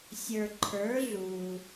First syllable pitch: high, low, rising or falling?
low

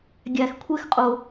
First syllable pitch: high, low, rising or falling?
low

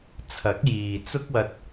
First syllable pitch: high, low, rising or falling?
rising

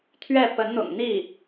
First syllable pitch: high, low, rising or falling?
falling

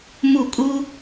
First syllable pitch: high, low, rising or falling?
falling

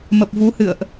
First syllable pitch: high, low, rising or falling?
low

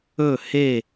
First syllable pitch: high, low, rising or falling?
falling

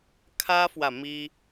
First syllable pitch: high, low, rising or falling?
high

